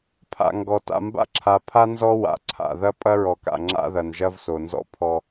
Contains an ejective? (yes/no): yes